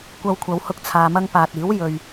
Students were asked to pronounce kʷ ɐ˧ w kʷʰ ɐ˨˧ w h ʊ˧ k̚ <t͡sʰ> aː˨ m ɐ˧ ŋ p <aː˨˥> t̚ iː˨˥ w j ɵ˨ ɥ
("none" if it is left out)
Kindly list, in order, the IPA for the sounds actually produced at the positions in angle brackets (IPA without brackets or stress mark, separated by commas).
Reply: t͡sʰ, aː˨